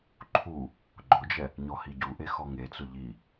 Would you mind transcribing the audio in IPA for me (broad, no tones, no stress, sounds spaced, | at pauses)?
ǃʰ u | ɡ͡ǃ ʊ d͡ʒ ɛ | ɲ ɔ h i ɟ u ʔ e x ɔ ŋ e t͡s ʊ ʎ i